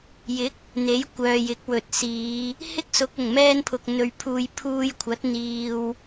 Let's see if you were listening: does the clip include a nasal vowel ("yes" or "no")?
no